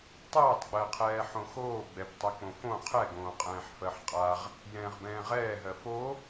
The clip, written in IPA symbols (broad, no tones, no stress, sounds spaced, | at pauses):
tˤ ɛː tˤ ɡ͡b ɜ qʰ ɛː ħ õ x oː ɡ͡b ɛ b tˤ ɛ k͡p õ f õ qʰ ɛ ɡ õː qʼ ɛ̃ː ħ f ɜ ħ qʼ a ʁ | j ɛ̃ː ʁ b ɛ̃ː ʁ ɛː ɦ ɜ f o